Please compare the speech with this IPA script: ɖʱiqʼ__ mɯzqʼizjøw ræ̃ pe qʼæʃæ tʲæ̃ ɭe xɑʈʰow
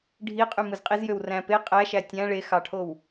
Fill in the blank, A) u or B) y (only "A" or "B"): B